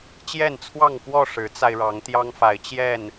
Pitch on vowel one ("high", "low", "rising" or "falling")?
falling